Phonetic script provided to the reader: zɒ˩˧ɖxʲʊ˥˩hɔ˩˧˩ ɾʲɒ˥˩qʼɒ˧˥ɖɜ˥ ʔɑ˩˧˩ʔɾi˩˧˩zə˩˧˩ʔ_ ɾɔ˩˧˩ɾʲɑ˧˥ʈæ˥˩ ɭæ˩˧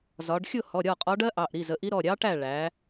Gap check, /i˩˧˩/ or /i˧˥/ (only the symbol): i˧˥